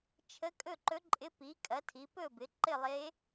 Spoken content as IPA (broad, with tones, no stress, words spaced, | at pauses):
t͡ʃʰə˧˥kʼɵ˥˨ǃɵ˧˥ǃʼɪ˧˥ pi˩˥kʼɐ˩˥ tʰi˩˥ pɵ˥˨bɪ˩˥ ǃɪ˥˨lˠe˧˥